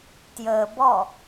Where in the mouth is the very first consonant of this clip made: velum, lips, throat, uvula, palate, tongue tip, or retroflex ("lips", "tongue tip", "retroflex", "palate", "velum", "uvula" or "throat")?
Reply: tongue tip